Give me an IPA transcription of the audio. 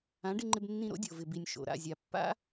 ã˨˦ ɖ ɪ˧ ŋ͡ǃ ɪ˧ b nː ĩ˧ ɾ o̰˦ dʲ o˨ v ɪ˨ b i˨ nʲ ʃ o̰˨ ɾ a̰˦˨ zʲ a˨ pː a̰˦

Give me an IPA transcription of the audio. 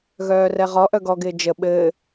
ɣ œː r ɛ ʁ ɔ ʔ œ ɡ ɔ ɡ ɪː d͡ʒ ə ɓ ɘː

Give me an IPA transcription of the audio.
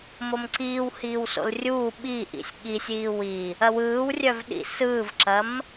m o m ǀ iː w h iː w s o̰ l rʲ uː ɓ i ʔ ḭ sʲ ɠ i sʲ iː w i | ɐ w ɯː w rʲ œ v ɗ ḭ s ɯː v ǁ ɐ m

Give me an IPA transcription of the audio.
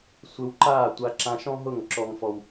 sʷ ɪ˧ w ǃ aː˦˨ tʷ a˧ ǁ ã˧ ʃ ɔ̃˦ ɦ ʊ˦˨ ŋ ǁ ɔ˦ ŋ f ɔ˦ w

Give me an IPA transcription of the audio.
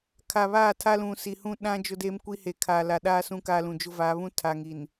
kʰ a˨ β aː˦˨ tʰ a˦ l ũ˨ s i˨ h ũ˦ ɗ ã˦ d͡ʒ ʊ˦ d eː˦ m kʷ i˦ h e˨ kʰ aː˨ l a˨ ɗ a˦ s ũ˦ k a˦ l ũ˨ d͡ʒ ʊ˦ v aː˨˦ β ũ˦ tʰ a˨ ŋ i˨ n

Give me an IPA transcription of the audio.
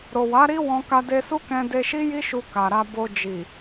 ɾ o˨ w a˨˦ ɾ i˦ w ɔ̃˧ k a˧ d e˧ s u˦ k ɛ̃˧ d e˧ ʃ i˦ j i˦ ʃ u˧ k a˨ ɾ a˧ b o˧ d͡ʒ i˨

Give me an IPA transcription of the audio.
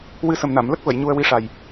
w ɨ˧ s ə˨˩ m n a˨˩˨ m l ə˦˥ k̚ v ə˨˩˨ j ɲ u˧ ə̯ w i˧˥ ʂ a˨˩ j

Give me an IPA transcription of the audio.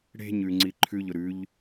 ɽ e̤ ɲ ʉ ŋ͡ǀ i ǃʰ ʉ ʎ ʊ ɾ ʉ ʎ

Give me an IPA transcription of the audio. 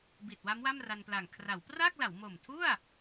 b i˨˩ t̚ w a˦˥ m w a˥˩ m r a˧ n p l a˨˩ ŋ kʰ r a˩˦ w p r a˥˩ k̚ l a˩˦ w m o˨˩ m tʰ u˥˩ a̯

